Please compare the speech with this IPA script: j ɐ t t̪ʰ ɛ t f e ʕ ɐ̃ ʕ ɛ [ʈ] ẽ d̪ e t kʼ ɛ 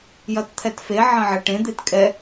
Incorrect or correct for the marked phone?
correct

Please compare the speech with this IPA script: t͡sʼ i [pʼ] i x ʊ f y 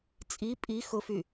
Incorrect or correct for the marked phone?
correct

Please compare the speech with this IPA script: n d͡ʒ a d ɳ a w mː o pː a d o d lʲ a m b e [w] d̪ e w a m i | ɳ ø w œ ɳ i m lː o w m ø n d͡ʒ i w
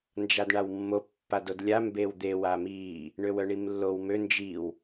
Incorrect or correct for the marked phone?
correct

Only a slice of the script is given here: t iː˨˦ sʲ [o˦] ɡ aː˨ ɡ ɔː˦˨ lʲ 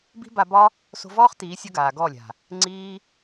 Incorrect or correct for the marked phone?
correct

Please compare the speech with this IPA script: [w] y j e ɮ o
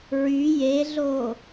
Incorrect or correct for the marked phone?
incorrect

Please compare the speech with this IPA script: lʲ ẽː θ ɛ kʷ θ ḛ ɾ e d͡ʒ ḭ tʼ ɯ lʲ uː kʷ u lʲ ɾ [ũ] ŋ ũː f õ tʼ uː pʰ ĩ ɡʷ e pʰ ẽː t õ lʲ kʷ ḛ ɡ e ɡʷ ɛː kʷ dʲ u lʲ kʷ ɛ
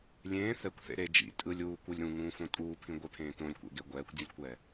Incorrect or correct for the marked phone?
correct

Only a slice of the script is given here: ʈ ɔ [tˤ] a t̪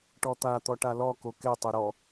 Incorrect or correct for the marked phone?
incorrect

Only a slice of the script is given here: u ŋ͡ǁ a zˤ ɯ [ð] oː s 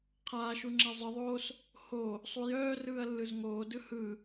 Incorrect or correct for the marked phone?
incorrect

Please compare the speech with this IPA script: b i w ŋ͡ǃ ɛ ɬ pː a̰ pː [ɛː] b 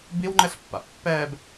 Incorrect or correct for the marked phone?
correct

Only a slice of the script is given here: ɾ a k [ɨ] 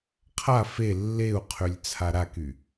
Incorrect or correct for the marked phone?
incorrect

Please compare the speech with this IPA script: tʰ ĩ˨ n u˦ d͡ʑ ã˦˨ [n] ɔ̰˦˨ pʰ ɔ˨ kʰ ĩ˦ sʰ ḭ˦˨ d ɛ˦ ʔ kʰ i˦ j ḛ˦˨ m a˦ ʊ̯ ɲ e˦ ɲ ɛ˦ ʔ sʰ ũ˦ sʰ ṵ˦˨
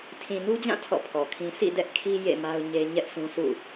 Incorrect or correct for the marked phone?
incorrect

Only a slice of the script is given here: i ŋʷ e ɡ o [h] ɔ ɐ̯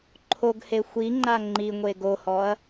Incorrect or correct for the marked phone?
correct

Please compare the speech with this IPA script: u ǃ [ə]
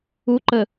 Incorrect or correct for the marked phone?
correct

